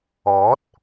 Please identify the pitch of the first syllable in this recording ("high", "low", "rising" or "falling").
rising